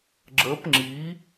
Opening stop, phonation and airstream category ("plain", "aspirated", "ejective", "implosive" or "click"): click